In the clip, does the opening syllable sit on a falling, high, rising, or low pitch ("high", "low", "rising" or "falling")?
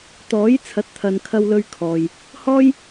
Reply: rising